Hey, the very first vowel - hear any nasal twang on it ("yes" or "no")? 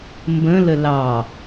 yes